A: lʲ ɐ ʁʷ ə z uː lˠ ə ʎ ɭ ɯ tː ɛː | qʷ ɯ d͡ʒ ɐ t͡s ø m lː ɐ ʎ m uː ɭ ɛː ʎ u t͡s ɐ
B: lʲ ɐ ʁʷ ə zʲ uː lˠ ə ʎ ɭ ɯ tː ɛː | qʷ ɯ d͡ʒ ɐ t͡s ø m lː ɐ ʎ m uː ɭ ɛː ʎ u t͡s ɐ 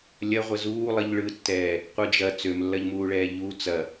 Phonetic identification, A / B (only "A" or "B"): A